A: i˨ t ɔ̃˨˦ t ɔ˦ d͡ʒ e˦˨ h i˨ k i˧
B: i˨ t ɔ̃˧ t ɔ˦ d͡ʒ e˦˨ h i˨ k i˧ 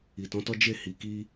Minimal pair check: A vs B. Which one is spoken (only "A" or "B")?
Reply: A